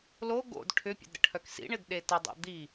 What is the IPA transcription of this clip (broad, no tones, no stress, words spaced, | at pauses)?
lo ɡo̰d ʈʰʏpʲə̰d ɾə̰ʈʰœksḭɳɪd ɗetɪdˤo̰ d̪i